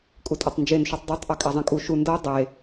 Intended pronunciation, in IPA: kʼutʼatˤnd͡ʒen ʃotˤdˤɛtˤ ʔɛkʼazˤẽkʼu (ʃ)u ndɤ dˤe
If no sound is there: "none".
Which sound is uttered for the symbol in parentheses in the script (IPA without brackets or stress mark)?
ʃ